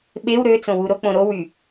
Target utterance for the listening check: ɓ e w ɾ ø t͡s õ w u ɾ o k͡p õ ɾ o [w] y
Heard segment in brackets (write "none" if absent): w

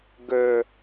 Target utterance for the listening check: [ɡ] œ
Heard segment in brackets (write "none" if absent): ɡ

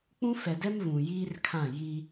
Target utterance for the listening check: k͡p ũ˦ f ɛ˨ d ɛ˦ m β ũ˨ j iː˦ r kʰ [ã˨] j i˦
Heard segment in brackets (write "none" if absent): ã˦˨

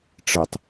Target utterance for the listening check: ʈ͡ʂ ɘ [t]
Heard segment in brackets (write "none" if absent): tˤ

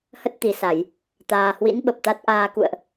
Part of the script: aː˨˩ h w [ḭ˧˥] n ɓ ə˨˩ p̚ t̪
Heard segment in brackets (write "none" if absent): ḭ˧˥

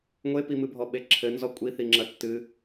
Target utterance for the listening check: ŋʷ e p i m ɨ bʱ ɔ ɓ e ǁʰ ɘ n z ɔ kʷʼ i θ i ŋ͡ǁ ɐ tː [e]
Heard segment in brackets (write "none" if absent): ɨ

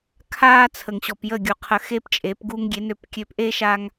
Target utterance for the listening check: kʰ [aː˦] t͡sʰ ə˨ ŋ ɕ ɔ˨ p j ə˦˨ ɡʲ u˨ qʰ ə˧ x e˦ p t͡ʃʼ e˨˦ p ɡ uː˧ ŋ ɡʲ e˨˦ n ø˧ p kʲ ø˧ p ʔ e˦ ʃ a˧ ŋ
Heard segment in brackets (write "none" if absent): aː˦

